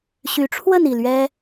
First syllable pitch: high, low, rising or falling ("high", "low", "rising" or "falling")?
rising